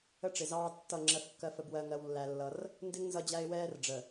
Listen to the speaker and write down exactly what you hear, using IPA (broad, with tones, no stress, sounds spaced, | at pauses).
ə˦ ʈ͡ʂ ɪ˨ z ɑː˦ tː ʌ˦˨ ŋ͡ǁ ɜ˦ f kː ɜ˦ f ə˦ b w ɜ˦ ŋ ɜ˦ w lː æ˦ lː ʌ˦ r | n d ɪ˦ ŋ n z ʌ˦ d͡ʑ æ˦ ɪ̯ w ɛː˦ r ɖ͡ʐ ə˨